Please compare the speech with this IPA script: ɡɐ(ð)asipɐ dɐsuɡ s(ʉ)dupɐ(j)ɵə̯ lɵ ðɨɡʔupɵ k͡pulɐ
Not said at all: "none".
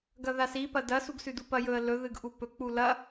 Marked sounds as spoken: ð, ʉ, j

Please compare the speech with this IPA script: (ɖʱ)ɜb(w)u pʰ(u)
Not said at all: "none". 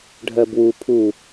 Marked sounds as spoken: ɖʱ, w, u

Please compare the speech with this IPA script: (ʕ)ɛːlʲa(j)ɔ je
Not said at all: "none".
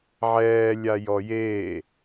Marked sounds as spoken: ʕ, j

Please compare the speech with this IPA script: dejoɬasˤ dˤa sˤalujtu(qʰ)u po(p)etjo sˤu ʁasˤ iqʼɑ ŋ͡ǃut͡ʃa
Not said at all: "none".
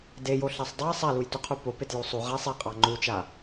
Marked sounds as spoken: qʰ, p

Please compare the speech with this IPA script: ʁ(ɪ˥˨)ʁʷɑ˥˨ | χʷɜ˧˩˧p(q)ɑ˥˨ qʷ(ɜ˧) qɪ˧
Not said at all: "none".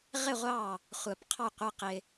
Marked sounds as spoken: ɪ˥˨, qʰ, ɜ˧

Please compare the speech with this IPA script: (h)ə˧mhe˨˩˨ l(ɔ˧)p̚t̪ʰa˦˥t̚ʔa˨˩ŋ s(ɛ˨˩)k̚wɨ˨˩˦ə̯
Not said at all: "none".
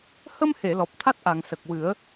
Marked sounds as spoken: h, ɔ˨˩, ə˨˩

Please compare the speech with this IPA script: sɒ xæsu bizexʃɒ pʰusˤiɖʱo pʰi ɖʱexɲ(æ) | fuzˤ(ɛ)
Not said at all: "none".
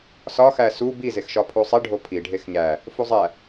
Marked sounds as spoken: æ, æ

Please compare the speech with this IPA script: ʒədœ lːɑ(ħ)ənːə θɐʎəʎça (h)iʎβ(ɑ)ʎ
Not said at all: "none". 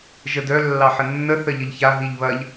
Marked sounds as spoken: ħ, ɦ, ɐ

